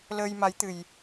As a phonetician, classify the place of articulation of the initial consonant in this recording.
alveolar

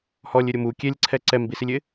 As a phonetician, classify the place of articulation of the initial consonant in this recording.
glottal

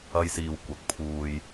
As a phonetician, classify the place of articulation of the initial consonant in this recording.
palatal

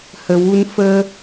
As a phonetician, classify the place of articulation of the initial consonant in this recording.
glottal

